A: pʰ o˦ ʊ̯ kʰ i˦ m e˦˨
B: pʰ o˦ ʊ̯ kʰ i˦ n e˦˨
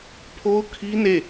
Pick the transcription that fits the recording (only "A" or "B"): B